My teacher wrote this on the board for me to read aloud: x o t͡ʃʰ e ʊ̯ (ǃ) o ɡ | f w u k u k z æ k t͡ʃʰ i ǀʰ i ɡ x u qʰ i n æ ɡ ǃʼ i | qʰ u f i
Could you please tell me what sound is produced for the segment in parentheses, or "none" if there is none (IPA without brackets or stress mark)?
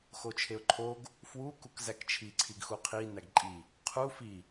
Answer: ǃʰ